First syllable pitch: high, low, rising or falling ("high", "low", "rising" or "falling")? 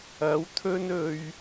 rising